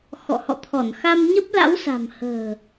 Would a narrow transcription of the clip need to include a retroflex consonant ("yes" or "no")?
no